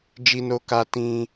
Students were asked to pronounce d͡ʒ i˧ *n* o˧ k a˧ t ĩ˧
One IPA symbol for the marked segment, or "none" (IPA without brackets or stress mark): n